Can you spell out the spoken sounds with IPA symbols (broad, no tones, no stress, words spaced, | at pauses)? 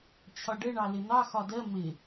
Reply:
t͡ɕʰɒɖəɳɑ lɪn̪ɑ xɒdɜ mɪ